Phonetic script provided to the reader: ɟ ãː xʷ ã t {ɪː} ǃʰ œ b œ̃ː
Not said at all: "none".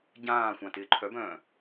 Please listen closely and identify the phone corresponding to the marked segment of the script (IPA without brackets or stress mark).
ɪː